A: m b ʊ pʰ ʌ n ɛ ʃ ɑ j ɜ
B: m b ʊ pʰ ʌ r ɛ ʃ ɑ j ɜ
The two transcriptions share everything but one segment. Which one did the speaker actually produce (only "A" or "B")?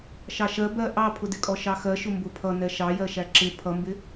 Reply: A